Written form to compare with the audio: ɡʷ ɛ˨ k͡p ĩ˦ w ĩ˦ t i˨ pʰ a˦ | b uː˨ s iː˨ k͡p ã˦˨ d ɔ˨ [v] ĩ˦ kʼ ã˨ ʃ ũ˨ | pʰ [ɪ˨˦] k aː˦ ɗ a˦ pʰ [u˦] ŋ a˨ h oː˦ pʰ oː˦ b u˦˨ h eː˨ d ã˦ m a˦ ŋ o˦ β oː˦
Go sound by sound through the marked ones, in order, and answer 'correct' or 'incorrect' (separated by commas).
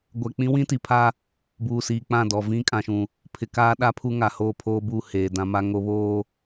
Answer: correct, incorrect, correct